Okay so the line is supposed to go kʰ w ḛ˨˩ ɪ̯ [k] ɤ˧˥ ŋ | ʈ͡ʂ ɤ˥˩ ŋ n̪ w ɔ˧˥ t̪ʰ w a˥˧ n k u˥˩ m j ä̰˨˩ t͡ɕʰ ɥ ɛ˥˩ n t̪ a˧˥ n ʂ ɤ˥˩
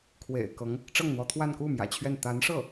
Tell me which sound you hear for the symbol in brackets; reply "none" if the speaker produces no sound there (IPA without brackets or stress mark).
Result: k